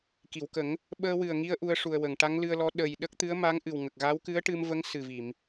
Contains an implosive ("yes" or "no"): yes